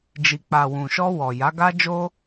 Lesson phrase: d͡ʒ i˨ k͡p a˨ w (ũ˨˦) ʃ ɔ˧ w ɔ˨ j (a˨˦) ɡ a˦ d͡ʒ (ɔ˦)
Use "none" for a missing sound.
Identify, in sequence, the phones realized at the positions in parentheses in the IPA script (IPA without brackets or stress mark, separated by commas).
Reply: ũ˨, a˨˦, o˦